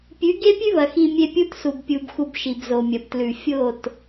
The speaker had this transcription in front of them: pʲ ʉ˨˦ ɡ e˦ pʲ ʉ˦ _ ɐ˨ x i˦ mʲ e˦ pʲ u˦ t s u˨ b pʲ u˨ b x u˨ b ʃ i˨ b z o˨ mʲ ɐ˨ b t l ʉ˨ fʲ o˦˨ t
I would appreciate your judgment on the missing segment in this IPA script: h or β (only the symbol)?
β